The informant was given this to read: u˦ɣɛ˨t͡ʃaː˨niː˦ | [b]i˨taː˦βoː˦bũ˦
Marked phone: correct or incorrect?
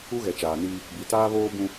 correct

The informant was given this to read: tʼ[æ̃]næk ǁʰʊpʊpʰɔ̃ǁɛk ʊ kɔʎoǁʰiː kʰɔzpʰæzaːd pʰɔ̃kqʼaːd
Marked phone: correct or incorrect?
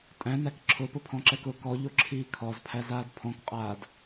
correct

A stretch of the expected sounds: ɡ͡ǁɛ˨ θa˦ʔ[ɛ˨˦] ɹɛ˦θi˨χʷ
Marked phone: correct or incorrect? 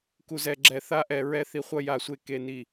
incorrect: ɛ˨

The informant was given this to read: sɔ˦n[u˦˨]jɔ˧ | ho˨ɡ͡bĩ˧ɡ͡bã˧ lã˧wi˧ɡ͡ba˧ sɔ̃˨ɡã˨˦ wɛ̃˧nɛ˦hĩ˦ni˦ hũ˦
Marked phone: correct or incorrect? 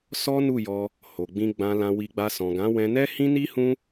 correct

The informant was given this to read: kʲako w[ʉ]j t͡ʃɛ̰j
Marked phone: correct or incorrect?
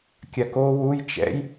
incorrect: u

